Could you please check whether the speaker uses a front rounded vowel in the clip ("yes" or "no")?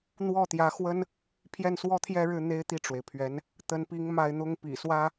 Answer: no